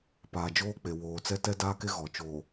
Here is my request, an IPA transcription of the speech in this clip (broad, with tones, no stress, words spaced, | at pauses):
paː˨d͡ʒoː˦k͡pe˨ woː˨t͡sɛ˦ tɛ˦daː˦ke˦ ɣɔ˨t͡ʃoː˨